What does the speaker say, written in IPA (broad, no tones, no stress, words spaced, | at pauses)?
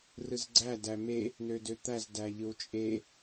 rɯzɡ͡ǀæ dæme | nødøt̪æz dæʎɯwt͡ʃʼe